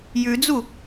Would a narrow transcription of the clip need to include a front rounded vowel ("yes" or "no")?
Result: no